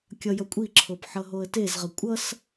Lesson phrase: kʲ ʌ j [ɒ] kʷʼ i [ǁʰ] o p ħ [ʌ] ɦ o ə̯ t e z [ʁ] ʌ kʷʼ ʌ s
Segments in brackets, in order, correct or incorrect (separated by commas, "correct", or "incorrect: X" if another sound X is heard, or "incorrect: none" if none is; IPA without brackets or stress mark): incorrect: ʌ, correct, correct, correct